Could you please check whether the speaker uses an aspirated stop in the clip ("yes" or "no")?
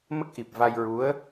no